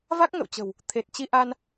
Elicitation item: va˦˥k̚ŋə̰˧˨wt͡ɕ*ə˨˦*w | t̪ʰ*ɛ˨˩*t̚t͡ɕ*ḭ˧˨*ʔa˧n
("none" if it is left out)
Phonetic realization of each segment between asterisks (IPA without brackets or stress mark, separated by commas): ə̤˨˩, e˨˩, i˧